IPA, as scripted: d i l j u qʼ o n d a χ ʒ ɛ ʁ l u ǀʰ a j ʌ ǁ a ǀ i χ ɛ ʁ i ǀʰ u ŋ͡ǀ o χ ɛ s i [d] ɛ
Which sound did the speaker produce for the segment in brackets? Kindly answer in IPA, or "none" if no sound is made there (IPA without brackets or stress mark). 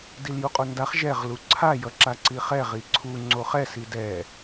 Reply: d